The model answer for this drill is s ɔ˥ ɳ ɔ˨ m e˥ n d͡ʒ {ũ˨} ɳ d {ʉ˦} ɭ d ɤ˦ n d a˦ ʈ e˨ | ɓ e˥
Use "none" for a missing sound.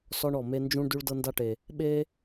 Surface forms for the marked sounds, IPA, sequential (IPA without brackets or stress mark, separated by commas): ũ˥, ʉ˦